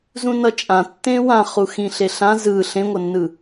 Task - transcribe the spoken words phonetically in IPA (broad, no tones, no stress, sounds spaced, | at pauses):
z ũ n ʌ t͡ʃʼ ã tː ẽ w ã χ u x ĩ ɬ e ɬ ã z ɯ ɬ ẽ ŋʷ ʌ nː ɯ